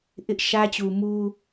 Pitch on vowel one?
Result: high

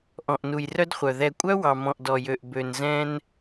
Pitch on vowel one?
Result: low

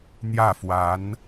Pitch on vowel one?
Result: falling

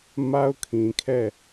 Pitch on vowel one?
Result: high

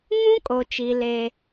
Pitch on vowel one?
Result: high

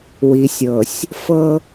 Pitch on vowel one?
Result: low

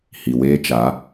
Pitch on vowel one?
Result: low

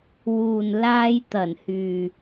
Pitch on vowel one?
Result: low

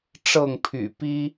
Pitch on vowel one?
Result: falling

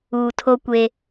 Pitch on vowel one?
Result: low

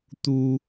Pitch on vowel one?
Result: high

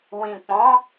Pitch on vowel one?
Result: low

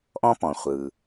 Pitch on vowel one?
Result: high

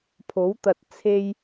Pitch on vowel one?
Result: rising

